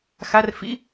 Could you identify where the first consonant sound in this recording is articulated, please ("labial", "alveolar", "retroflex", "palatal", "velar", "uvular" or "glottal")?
velar